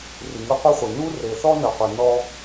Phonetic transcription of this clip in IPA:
r i˩ ŋ ɯ˦ qʷ ɤ˥ χʷ i˩ n u˥ r e˨ θ ɔ˥ n ɤ˨ qʷ e˨ n ɔ˥

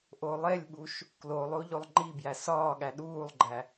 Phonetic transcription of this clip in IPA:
ʔ o lˠ e lʲ ɓ u ʃ | k l o lˠ o ʎ o lˠ ŋ͡ǃ i b j æ s ɒː ɠ æ ɗ uː lˠ ɡ͡ǃ æ

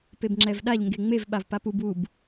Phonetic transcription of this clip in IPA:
p e b ŋ͡ǁ ɛ v ɗ a ʎ ŋ ɡ e ŋ͡m e v ɓ a v p a p u b u b

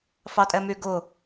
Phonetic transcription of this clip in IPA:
f ɑ tʼ ɛ m y ɡ ʊ

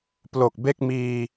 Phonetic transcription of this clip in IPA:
p l o˨˩ k̚ b e˥˩ k̚ m iː˧

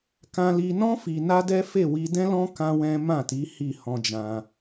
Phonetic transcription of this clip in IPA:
k ã˧ l i˧ n ɔ̃˦ f i˧ n a˦ d ɛ˦ f e˦˨ w i˧ d ɛ̃˦ l ɔ̃˦ k ã˦ w ɛ̃˦ m ã˦˨ t i˨˦ h i˦˨ h ɔ̃˧ d͡ʒ ã˧

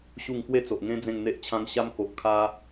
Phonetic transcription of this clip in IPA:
ɕ u˥˧ ŋ k w e˥˧ t͡s o˨ ʔ ŋ ẽ˦ d͡z ẽ˥˧ ŋ n̪ e˦ ʔ t͡ɕʰ ã˦ ŋ ɕ a˦ m k o˨ ʔ kʰ a˧

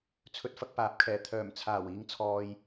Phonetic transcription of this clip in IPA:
t͡sʰ ɵ˧ t̚ f ɐ˧ k̚ p aː˨˥ p̚ kʰ ɛː˨˩ t̪ʰ œː˨˩ m t͡sʰ aː˨˩ w iː˨ ŋ t͡sʰ ɔː˨ j

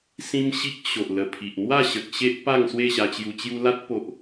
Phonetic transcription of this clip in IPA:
s ĩ˦ m ɕ i˦ k̚ ɕ o˨ ʔ l ə˨˩ pʰ i˨ ʔ n̪ w a˥˧ ɕ ə˨ k̚ ɕ e˦ ʔ p a˥˧ ŋ s w e˥˧ ɕ a˧ t͡ɕ j u˧ t͡ɕ j u˦ l a˦ t̚ p o˨ ʔ

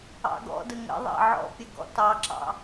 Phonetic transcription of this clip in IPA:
ɑ̰ ɡ ɔ̰ d ə ŋ ə̰ ðˤ ɑ̰ ʕ ɔ̰ pʲ ə ɡ ɔ̰ t ɑ ǁ ɑ̰

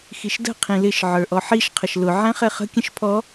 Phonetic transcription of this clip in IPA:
x i ʃ d ə̤ qʰ ĩ l ɪ ʃ ʕ ə˞ ʔ ɔ ħ i ʃ qʰ ə ʃ l ʊ ʕ æ̃ χ ɛ χ ə̤ kʲ ə̃ ʃ pʰ ɔ

